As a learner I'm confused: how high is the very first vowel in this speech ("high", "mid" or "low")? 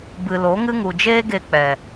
high